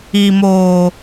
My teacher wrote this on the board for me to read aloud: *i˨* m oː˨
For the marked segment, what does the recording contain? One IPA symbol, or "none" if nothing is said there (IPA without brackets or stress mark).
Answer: i˨